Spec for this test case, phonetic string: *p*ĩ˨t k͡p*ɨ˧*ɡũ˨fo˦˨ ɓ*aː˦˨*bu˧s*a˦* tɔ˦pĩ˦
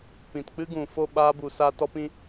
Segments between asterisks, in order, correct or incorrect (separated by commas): correct, incorrect, incorrect, correct